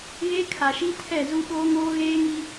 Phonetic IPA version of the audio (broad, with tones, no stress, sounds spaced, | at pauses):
ɣ e˦ kʰ a˨ ʃ i˦ tʰ ɛ˦˨ z u˦ ɓ oː˦ ŋ oː˦ ɣ eː˦ ŋ i˦